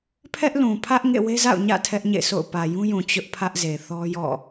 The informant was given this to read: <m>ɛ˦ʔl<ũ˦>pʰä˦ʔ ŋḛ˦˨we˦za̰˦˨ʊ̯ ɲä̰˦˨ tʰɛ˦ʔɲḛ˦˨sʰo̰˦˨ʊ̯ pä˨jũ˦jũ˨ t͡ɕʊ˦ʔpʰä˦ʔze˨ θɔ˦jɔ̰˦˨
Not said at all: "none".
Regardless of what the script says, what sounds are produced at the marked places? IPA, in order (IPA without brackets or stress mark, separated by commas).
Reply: pʰ, ũ˨